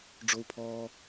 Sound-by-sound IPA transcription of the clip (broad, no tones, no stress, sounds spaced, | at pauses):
ɖ͡ʐ o u̯ pʰ ɔː